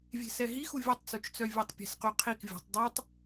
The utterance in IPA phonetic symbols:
vʲe̤sɛɦixu vʲœtˤt͡sut͡ʃt͡sœ vʲɛtˤpʲe̤sqyqʰik vʲə̤tˤ dˤotˤ

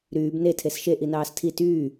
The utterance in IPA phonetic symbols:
ɾyːb ne tʰesʃe ʔinɑːstʰi tyː

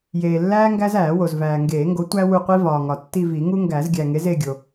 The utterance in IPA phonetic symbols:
jeː˨lːæː˦ ŋɡæ˦zæː˨˩˦wo˨z væː˨ŋɡeː˨˩˦ŋɡo˨˥ tʷæ˦wu˦˨ qʷi˦vɒː˨ŋɒ˨ tːi˦˨vi˨˩˦ŋu˦ ŋɡæ˨˩˦zɡʲæ˨ŋe˨˥z e˦˨ɡʲo˨

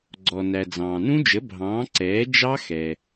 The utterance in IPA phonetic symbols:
ɡ͡ǀɔ˩næ˩ d͡zɑ̃ː˩nũ˦˥d͡ʒə˩˥ bʱɑ̃ː˩˥ ǀɛː˩˥ d͡ʒɑ˦˥xɛ˩

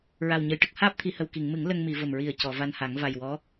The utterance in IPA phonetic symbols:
ɹa˨˩wɲə˨˩jʈə˦˥k̚ haː˦˥p̚t̪ʰi˨˩˨hə˨˩w ki˨˩˨ŋmɨ˨˩˦ŋ lə˧ŋmi˨˩˨ və˨˩mɹi˨˩ə̯ cɔ˨˩˨va˧nha˨˩˦ŋ va˨˩jwɔ˧˥

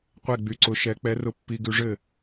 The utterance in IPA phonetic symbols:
qʷɛ˥˨ɡ͡by˧ǀʊ˨˥ʃɛ˨˥ k͡pɛ˨˥rʊ˧ pːi˧ɡʉ˧ʐɘ˥˨

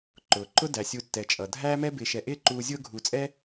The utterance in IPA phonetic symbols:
ǃʊː˩ǃʊ˥ dæ˩sʲu˨tːɛ˩ t͡ʃʼʌ˩ dʱæː˥mɛ˥bɪː˨ʃɛ˨ ʔɪː˦ǃuː˨zʲʊː˦ ɡʱuː˨t͡sʼɛ˥

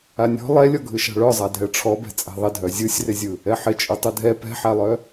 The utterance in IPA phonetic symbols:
anʲɔ̤ lˠɛlʲɔ ɡʱɯʃa̤ɭœzˤa dʱɛʈ͡ʂʰɔbɛ̤ t͡sʼɛ̤ðˤɪdʱœ zʲɯsʲrɪzʲɯ | ɛħɪt͡ʃʼɯ tˤɯdʱɛ pɛ̤ħalˠœ

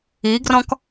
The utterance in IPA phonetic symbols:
iɡrɔ̃k

